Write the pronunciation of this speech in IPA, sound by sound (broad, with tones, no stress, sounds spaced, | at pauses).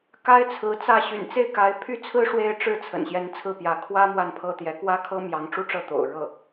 k a˥ ɪ̯ t͡sʰ ɹ̩˧˥ t͡s ä˥˩ ɕ y̰˨˩ n t͡s e˥˩ ɪ̯ k a˧˥ ɪ̯ pʰ y˥ t͡sʰ ɹ̩˥ ʂ w e˥˧ ɪ̯ ʈ͡ʂ ɻ̩˥˩ t͡sʰ ə̰˨˩ n ɕ j ɛ˧˥ n t͡sʰ ɹ̩˥˩ p j ä˧˥ kʰ w ä˥ m w a˥˩ n pʰ ɤ˥ t̪ j ɛ˧˥ k w ä˥ kʰ ɤ˥ m j ɑ˧˥ ŋ ʈ͡ʂ u˥ ʈ͡ʂ ɤ˥˩ t̪ o̰˨˩ ʊ̯ ɻ ɤ˥˩